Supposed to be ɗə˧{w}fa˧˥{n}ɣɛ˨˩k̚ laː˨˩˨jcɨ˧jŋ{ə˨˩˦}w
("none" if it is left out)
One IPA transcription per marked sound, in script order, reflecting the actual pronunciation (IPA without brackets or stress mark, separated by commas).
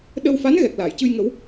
w, n, ə˨˩˦